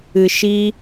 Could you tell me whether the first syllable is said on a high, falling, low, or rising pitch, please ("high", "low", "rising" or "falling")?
low